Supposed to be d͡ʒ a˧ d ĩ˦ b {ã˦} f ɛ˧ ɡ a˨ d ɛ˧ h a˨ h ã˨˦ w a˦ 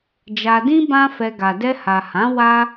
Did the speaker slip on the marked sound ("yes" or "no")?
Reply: no